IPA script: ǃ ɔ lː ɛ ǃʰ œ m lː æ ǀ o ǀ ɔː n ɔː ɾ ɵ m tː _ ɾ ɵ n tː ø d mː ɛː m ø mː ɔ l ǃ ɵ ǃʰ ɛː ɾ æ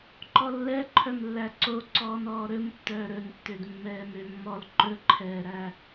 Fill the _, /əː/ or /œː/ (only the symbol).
œː